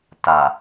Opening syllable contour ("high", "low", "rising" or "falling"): low